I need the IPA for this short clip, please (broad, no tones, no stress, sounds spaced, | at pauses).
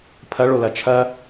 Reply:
pʰ ɐ ɭ o l ɐ t͡ʃʰ ɐ